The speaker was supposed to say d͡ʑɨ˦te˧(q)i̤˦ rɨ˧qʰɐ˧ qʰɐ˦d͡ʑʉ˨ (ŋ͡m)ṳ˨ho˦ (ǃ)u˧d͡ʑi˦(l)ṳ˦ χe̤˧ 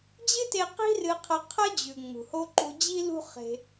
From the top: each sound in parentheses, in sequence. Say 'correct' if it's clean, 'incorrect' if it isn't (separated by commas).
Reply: correct, correct, correct, correct